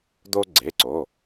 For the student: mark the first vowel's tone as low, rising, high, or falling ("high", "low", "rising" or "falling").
high